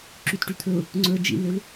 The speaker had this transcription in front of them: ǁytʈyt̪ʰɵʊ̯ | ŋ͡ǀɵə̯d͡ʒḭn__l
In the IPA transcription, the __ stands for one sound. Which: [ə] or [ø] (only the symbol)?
ø